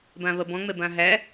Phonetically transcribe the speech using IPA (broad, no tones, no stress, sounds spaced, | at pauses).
b ã β ɐ b ɔ̃ ŋ͡m ɛ b ã ɦ æ